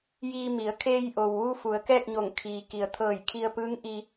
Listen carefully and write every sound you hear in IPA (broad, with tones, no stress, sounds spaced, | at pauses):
j iː˧ m i˩˧ ə̯ kʰ eː˧ j ʔ o˩ w ʋ u˧ f u˩˧ ə̯ k ɛː˥˨ k̚ ɲ o˧˩ ŋ kʰ iː˩ k i˩ ə̯ t̪ʰ ɤː˧˩ j kʰ i˧ ə̯ p ɯː˧˥ ŋ ʔ i˧